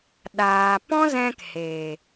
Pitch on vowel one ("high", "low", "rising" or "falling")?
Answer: low